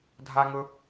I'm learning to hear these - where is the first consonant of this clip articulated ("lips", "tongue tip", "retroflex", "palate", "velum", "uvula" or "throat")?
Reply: tongue tip